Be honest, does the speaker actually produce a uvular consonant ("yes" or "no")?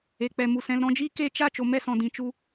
no